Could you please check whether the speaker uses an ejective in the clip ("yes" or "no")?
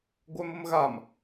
no